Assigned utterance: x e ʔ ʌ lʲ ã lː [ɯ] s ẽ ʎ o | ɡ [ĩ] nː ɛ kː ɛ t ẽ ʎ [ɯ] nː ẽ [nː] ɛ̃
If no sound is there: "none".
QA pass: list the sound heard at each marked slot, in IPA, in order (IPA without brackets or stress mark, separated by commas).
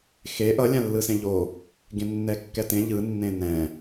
ɯ, ẽ, ɯ, n